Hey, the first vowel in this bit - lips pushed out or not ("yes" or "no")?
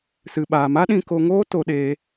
no